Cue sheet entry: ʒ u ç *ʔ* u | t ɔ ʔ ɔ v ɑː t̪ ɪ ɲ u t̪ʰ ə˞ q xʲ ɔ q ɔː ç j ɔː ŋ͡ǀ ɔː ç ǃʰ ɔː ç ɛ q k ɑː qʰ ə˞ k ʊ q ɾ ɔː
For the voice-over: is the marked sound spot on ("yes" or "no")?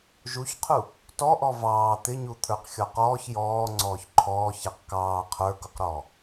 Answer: no